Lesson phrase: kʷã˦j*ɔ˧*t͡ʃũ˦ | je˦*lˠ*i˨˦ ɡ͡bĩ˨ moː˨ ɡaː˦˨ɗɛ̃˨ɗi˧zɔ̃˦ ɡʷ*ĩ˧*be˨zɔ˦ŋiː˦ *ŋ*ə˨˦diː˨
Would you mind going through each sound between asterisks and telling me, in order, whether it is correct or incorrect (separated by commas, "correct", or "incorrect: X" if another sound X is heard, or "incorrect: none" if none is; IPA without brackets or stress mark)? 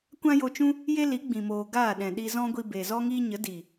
incorrect: o˧, incorrect: l, incorrect: i˧, incorrect: ɲ